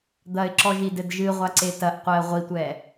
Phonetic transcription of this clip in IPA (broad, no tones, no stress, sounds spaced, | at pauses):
d̪ ɐ ɪ̯ ǁ ɔ ʒ i d ɘ d ʒ ɨ ʁʷ a ǀ e t ɐ ʔ qʷ ɛ ə̯ ʁʷ i tʷ ɛ